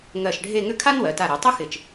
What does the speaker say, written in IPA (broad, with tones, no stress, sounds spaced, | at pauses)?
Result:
ŋ ɜ˧˩ ʃ ɖʱ e˥˧ ŋ ʏ˥˧ kʰ a˥ n w ɜ˩˧ t a˧˩ ɾ ɛ˩˧ tˤ ɪ˥ x ɪ˧˩ t͡ʃ